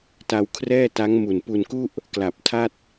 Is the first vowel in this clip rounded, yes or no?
no